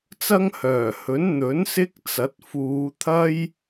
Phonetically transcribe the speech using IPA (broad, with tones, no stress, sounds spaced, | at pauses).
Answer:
t͡s ɐ˥ ŋ h œː˨˩ h ɵ˨˥ n n̪ ɵ˨˥ n s ɪ˥ k̚ t͡s ɐ˨˥ t̚ f uː˨˧ t̪ʰ ɐ˥ j